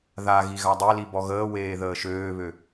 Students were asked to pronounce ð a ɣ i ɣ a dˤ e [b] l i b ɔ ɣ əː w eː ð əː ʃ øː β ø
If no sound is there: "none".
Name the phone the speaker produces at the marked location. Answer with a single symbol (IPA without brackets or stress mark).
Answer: none